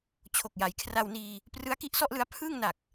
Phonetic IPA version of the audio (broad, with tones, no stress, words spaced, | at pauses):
t͡ɕʰo˨˩k̚ja˩˦jkʰra˧wniː˧ | prɯ˦˥a̯ki˦˥ʔsɔ˥˩ʔlɯ˦˥a̯ pʰɯː˥˩ŋna˨˩k̚